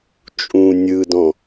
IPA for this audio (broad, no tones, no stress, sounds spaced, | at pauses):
t͡ʃʼ ũː nʲ ɯ d ɔ̃